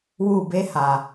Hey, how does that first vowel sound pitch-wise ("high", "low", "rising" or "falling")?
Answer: falling